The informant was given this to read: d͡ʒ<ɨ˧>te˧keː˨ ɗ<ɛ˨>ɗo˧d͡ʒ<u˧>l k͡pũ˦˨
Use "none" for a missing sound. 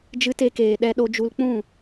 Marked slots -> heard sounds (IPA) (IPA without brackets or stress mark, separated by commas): ɨ˧, ɛ˧, u˧